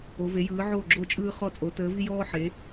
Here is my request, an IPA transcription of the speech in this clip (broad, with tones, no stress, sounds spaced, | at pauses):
o˩˧ v e˩˧ j ɯː˩˧ ʕ oː˧˩ ɡ͡ǁ o˧˩ t͡ʃʼ ɯː˧ χ ɔ˧˩ t͡sʼ o˩˧ t əː˩˧ v i˧ j ɔː˧ ħ e˩˧